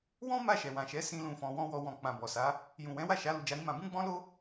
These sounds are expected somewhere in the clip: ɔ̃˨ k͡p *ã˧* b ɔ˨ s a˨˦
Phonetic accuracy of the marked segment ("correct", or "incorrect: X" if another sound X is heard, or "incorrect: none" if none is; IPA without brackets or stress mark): incorrect: ã˨